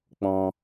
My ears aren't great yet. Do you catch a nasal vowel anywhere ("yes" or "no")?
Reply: yes